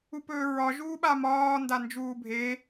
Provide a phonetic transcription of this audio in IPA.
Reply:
upɵːɹɒ ʒuːɓamɒː ndand͡ʒuːbʱe

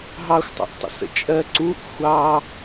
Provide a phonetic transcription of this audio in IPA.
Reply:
ɦɑxʷ tˤə̰ʔtˤə̰sə̰t͡ʃʼɜ ǀuʔ xʷɑ

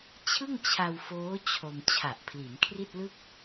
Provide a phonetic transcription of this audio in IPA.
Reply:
t͡ɕʰɯ˥˩ŋt͡ɕʰa˧wfoː˦˥ t͡ɕʰo˧m t͡ɕʰa˨˩ʔpʰli˩˦nkʰri˥˩t̚lɯ˥˩k̚

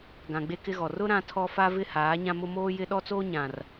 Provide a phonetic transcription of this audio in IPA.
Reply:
ɡã˨ɡ͡be˦kɪ˦ɣɔ˨ rʊ˦ ɾã˦tʰɔ˦fa˦ vɪ˦haː˨˦ɲã˦mʊ˦ moː˦jɪ˦ ɗɔ˦t͡soː˦ ɲã˨r

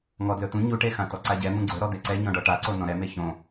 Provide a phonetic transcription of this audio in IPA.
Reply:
ŋɔdlɵt̪ũ ɲuʈexãtɔ ǀaɟɛmũ ɡ͡ǀɵɾɔ d̪eǀɛ ɲɔ̃ɖɔʈaǀo nɔ̃ɾɛme çõ

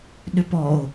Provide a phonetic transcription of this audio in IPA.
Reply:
ɗʏpɔo̯

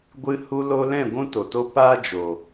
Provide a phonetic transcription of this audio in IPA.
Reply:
ɡʷɨ˧ hu˧lo˧lɛ̃˦˨ ɡʷũ˦to˨to˦paː˦ d͡ʒo˨

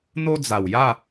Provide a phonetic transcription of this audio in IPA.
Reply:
n̪o˦d͡za˨˩wja˥˧

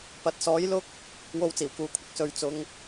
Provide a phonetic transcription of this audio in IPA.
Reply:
pɐ˨˥t̚sɔː˨˥jlʊ˥k̚ | wo˧wt͡siː˨˩wkuː˨kʷʰɪ˧k̚ sɵ˨ɥt͡sʊ˨˧ŋ

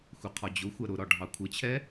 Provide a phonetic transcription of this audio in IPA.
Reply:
xʷɪqʰɒd͡ʑʊxʷɜ ɾʊɾɒ ɖʱɑkʷʰət͡ɕʰɛ

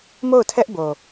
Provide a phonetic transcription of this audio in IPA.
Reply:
mo˦˨ʊ̯tʰɛ˦ʔbo˨

